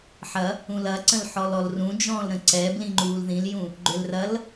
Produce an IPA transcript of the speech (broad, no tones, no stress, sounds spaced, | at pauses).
ħ ɐ | ũ l ɐ ǀ ə̃ l ħ ɔ l ɔ l r ũ d͡ʒ ɔ̃ː l ɾ ə̃ ǀ ɛ b l ĩ ŋ͡ǃ uː l ð ĩ l j ũ | ɡ͡ǃ ʏ l r ɐ l